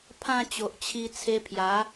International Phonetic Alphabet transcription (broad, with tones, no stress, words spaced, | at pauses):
pʰã˥˧t͡ɕo˨ʔt͡ɕʰi˧ t͡sʰe˧pʰja˨˦